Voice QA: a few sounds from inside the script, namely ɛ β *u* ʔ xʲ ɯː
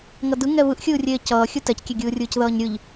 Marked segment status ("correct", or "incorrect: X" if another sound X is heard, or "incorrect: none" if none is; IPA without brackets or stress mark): incorrect: ɯ